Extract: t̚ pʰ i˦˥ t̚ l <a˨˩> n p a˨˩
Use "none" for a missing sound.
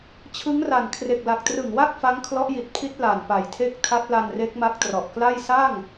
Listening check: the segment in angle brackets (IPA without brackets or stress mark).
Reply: a˨˩